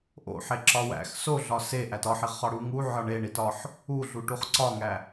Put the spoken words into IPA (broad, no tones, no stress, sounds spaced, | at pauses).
ʔ o̰ ħ e ǁ ɒ w æ̰ x s o ɮ ɒ s e ʔ æ t ɒ ħ i ʁ χ ɒ ɽ u ŋ u ʕ ɒ ɳ e ɳ i t ɒ ħ | u ɮ u ʈ u χ ǀ ɒ ŋ æ